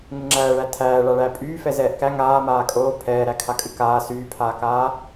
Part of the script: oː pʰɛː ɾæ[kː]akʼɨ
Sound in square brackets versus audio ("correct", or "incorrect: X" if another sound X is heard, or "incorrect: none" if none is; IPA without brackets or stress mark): incorrect: kʰ